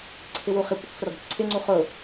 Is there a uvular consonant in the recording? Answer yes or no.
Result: yes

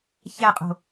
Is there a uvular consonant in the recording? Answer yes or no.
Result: yes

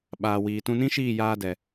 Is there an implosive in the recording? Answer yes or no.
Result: yes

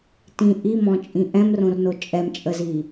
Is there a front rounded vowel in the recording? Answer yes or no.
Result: no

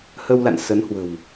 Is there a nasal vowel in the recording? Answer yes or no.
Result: no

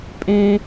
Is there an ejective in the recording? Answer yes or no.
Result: yes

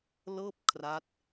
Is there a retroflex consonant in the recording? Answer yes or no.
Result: no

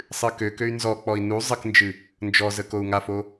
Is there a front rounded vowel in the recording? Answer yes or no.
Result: yes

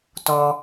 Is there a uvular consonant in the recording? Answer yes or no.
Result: no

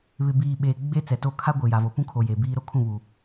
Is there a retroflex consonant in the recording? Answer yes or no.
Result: no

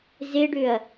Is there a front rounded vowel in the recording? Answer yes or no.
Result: yes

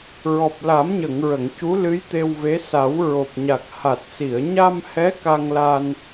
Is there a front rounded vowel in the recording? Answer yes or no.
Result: no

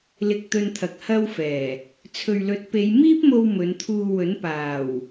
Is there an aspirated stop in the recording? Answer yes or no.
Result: yes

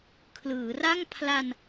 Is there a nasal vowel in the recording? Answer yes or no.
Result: no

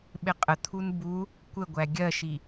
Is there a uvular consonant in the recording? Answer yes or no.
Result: yes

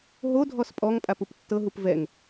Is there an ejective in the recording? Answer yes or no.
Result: yes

